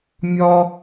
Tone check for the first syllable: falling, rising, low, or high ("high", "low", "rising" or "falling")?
high